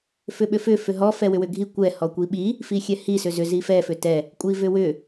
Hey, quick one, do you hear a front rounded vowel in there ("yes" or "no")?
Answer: yes